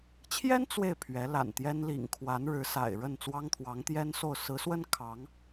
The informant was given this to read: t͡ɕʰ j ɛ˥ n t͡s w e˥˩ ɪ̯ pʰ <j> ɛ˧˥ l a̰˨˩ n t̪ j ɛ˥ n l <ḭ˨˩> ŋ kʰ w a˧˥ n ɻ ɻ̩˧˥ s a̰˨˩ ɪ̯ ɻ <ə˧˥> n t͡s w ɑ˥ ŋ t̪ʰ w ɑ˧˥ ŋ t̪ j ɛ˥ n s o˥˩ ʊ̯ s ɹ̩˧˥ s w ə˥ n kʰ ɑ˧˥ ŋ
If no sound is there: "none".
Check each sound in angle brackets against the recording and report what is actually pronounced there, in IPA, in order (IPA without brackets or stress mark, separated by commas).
ɥ, ḭ˨˩, ə˥˩